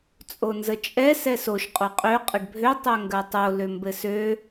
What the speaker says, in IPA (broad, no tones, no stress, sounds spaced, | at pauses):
t͡sʼ o n z ə t͡ʃʼ ɛ s ɛ s o ʃ qʼ o qʼ ø qʼ ə ɖ bʱ ø tˤ ø ŋ ɡ ɜ tˤ o l ø m b ɘ s ø